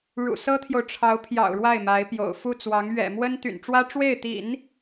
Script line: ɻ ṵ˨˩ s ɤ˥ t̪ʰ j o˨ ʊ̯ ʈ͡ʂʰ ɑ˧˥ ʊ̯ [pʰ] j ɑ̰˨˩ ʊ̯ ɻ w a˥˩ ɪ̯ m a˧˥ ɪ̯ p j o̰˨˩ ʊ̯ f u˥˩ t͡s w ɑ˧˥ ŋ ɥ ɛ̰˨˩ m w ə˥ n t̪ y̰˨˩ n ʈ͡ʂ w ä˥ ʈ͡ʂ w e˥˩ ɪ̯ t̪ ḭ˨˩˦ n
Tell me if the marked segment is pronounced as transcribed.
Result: yes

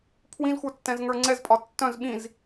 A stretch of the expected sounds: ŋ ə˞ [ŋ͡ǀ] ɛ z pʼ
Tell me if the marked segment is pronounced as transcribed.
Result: yes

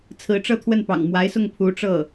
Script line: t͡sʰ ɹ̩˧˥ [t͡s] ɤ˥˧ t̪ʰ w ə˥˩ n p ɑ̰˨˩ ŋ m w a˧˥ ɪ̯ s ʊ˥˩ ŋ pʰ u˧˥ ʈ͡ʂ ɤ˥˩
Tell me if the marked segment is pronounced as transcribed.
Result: no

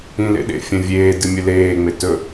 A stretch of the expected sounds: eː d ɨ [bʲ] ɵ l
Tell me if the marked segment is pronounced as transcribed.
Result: no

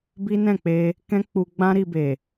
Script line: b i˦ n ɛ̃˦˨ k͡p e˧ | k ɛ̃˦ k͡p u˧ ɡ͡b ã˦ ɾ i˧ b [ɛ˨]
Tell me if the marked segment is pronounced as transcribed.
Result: no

